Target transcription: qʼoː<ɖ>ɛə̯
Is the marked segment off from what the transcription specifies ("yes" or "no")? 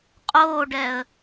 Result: no